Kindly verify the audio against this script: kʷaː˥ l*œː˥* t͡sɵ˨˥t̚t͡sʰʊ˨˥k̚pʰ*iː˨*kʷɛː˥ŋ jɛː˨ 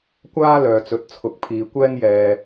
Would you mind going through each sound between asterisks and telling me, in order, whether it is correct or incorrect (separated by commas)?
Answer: incorrect, correct